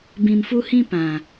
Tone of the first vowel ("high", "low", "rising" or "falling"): low